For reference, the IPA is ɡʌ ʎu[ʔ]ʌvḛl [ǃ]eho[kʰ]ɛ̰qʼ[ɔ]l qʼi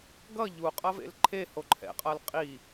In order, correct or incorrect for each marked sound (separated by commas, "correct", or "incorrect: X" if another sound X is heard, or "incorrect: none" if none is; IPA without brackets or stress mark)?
incorrect: qʼ, incorrect: ǃʰ, incorrect: ǃʰ, incorrect: ʌ